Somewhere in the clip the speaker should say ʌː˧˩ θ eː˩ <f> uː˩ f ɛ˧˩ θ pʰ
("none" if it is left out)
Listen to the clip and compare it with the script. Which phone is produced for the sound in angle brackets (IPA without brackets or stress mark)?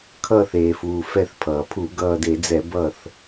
f